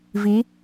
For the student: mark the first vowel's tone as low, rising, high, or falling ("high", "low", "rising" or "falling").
rising